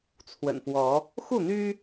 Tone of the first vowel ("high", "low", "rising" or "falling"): low